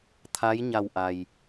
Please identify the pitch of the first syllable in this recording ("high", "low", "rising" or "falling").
rising